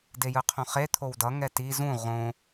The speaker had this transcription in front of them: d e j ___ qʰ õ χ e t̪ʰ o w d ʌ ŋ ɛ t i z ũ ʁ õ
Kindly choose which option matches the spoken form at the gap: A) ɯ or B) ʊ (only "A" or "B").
A